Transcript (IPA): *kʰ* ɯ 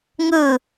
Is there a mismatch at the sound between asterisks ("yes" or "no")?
yes